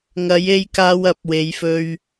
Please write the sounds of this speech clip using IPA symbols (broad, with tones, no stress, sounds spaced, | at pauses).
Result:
ŋ ɐ˨˥ j e˧ j k aː˧ w ɐ˨˥ p̚ w e˨˥ j f ɵ˧ ɥ